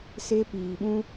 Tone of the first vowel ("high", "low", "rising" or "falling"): high